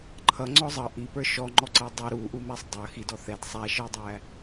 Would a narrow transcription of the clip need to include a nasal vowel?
no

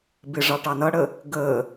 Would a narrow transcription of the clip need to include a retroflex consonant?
yes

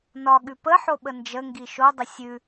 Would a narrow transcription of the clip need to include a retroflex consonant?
no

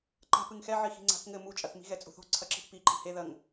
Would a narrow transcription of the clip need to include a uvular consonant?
no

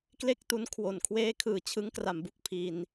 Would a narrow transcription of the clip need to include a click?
no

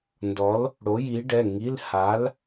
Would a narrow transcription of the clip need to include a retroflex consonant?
yes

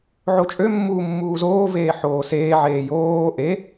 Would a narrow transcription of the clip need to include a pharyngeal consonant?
yes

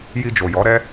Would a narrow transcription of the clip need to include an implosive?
no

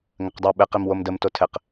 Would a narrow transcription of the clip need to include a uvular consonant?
yes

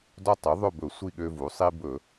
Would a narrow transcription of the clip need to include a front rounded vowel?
yes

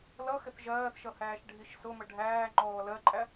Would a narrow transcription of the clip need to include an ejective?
yes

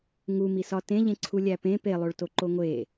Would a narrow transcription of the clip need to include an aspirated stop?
yes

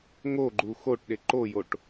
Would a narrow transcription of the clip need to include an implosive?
yes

